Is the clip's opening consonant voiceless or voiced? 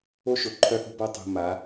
voiceless